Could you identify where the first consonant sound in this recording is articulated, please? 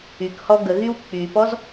velar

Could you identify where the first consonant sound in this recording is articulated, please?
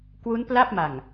velar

